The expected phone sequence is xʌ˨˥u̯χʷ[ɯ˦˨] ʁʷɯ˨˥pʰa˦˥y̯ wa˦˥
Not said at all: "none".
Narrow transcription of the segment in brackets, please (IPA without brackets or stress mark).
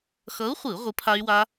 ɯ˧˩˧